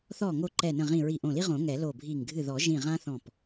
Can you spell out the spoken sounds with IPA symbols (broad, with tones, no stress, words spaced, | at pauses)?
θɔ˧˩ŋo˧˩ ǃɛ˧˩nə̃˧˩ʁĩ˧˩ ɹi˧˩ʔõ˧˩li˦ ʁõ˨˩˦ŋɛ˨˩˦ lo˧˩bʱi˧˩ŋ ɡʱɨ˧˩ðɔ˨˩˦ʒĩ˧˩ ʁã˦θɔ̃˧˩p